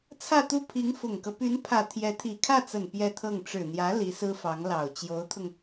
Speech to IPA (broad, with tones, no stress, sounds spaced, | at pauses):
t͡sʰ ä˥˧ t̪ u˥˩ pʰ i˧˥ ŋ f ʊ˨˩ ŋ k ɤ˦ p y˧˥ n pʰ ä˨˩ t̪ʰ j ɛ˧˥ t̪ʰ i˨˩ kʰ ä˥˩ t͡s ə˨˩ n p j ɛ˥˧ t̪ʰ ɤ˥˩ ŋ ʈ͡ʂ ɻ̩˨˩ n̪ j ä˧˥ l i˧˥ s ɹ̩˥ f ɑ˧˥ ŋ l ɑ˨˩ ʊ̯ t͡ɕ j o˧˥ ʊ̯ t̪ʰ ʊ˧ ŋ